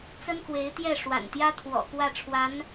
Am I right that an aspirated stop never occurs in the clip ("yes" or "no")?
no